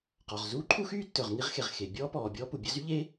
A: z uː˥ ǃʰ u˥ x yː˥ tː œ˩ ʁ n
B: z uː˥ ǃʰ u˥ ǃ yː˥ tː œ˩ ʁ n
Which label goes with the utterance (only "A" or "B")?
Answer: A